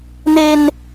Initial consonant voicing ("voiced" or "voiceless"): voiced